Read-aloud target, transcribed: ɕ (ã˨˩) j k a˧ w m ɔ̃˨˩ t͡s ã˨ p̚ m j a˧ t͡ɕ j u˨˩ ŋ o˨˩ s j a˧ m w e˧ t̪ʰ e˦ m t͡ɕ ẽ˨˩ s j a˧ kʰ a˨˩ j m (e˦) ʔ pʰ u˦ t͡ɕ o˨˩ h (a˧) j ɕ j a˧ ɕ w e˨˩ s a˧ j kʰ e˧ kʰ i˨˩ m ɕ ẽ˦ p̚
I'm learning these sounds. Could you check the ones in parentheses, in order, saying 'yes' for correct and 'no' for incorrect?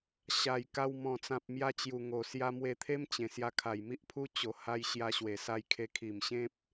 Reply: no, no, yes

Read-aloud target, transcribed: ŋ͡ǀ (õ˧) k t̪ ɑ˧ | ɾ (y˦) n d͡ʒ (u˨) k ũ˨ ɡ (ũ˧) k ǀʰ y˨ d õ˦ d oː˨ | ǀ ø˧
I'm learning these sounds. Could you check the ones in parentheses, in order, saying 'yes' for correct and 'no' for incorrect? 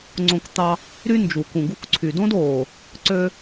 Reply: yes, yes, yes, no

